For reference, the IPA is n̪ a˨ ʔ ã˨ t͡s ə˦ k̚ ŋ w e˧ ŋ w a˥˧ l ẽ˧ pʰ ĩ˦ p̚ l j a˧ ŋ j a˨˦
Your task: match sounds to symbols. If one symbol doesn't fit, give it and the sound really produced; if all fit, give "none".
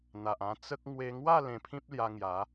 ã˨ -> ã˧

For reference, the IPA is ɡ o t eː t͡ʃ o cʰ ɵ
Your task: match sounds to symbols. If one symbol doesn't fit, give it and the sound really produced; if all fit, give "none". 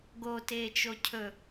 none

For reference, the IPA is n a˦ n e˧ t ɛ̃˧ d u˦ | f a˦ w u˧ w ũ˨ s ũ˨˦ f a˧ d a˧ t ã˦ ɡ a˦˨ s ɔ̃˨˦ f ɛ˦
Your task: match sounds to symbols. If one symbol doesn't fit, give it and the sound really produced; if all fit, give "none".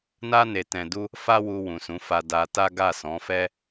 ã˦ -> a˦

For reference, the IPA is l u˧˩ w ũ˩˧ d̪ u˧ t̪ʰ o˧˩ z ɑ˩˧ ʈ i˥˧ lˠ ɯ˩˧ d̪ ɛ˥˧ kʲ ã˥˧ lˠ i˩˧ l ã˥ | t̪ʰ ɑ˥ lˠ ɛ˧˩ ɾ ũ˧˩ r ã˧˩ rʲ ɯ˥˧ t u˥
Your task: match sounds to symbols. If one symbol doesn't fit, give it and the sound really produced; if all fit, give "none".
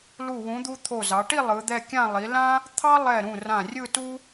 none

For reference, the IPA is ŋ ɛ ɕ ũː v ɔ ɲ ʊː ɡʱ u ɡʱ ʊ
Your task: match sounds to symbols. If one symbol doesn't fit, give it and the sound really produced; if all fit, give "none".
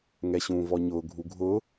none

